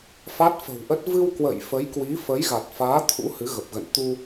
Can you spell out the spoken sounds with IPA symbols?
f a˦˥ t̚ f ə̤˨˩ w ʔ ə˦˥ t̚ v ɨ˧ w k w ə̰˧˨ j f ə˨˦ j k w i˨˦ f ə˨˦ j ɣ a˨˩ t̚ f aː˨˦ t̪ʰ ṵ˧˥ h ɨ˨˦ ɣ ə˨˩ p̚ ɣ ə̰˧˨ n t̪ u˧

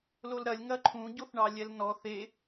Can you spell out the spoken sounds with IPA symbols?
l o l ɾ ɐ lʲ ŋ ɐ ǃʰ ũ ɟ o θ ɳ ɑ lʲ ɛ l n ɔ θ e

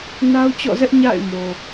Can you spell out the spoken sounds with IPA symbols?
n a˦ ʊ̯ t͡ɕ ɔ̰˦˨ z ɛ˦ ʔ ɲ a̰˦˨ ɪ̯ m o˨

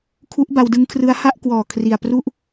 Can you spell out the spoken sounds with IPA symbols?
kʰ u˦˥ ʔ b a˧ w d ɯ˦˥ ŋ kʰ r ɯ˦˥ a̯ h a˥˩ ʔ k w ɔː˨˩ kʰ r i˨˩ a̯ p r u˥˩ ʔ

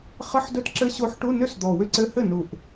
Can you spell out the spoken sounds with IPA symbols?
χ ə˧˥˧ ħ d ɵ˧˥ t ǁ ɘ˧˥ ɕ o˧˥ ħ ʈ u˧˥˧ n ʏ˥˩ s d̪ ɔ˨˩ w ʏ˧˥˧ ǀ ɘ˧˥ h ɘ˥˩ n u˨˩ ʔ

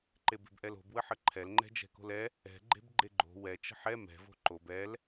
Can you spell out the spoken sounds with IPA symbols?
ǃ e b e̤ b ʔ ɛ l o̤ b w ə ħ ə ǃʰ ɛ l ŋ͡ǃ ɛ̤ d͡ʒ ɛ̤ k o̤ l ɛ | ɛ̤ ɡ͡ǃ e̤ b ɡ͡ǃ e ɡ͡ǃ o̤ w ɛ t͡ʃ ə̤ ħ ɛ m ɛ̤ v o̤ ǃ o b ɛ l

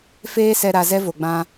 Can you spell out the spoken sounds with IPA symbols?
f eː˦ s ɛ˧ ɾ a˧ z ɛ˦ v o˨ ɡ͡b ã˧

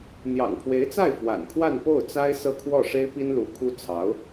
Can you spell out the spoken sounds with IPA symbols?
n̪ j ɑ̰˨˩ ŋ pʰ w e˧˥ ɪ̯ t͡s a˥˩ ɪ̯ f w a̰˨˩ n kʰ w a˥˧ n p o˥˩ ʊ̯ t͡s a˥ ɪ̯ s ɤ˥˧ kʰ w ɔ˥˩ ʂ e˥ ɪ̯ p i˥ n l u˧˥ kʰ u˥ t͡sʰ ɑ˧˥ ʊ̯

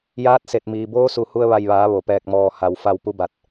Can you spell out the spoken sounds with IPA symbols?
j aː˧˥ t̚ s e˧˩ t̚ m iː˩ b oː˧˥ s u˧˩ h u˧ ə̯ ʋ a˧˩ j ʋ aː˩˧ ʋ o˩ p ɛː˧˩ k̚ m ɔː˧˩ h a˩ w f a˧˩ w p u˧˥ b a˧ t̚

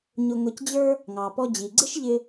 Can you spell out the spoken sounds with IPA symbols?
ɲ ʊ˧ ŋ ʊ˧ c d͡ʑ ə˞˥ | ŋ ɑ˩ p ɔ˧ d͡ʑ i˩ ɡ͡ǀ ɪ˥ ʃ ʎ ɪ˧

